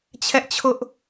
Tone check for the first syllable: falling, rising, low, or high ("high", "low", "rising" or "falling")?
high